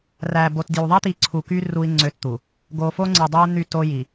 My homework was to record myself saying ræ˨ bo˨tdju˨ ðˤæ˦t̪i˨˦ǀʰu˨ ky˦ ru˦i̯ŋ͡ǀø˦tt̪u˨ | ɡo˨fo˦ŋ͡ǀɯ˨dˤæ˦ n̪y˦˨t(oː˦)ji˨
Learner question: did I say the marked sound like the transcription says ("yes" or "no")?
no